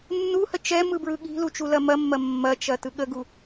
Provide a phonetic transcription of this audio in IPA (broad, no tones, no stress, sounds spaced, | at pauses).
nː u h ə t͡ʃ ɛ m ɯ b ɹ ɯ ɠ i̤ l u t͡ʃ u l ɐ m ɐ mː ɐ mː ɐ t͡ʃ ɐ t ɯ ɠ ə ɡ u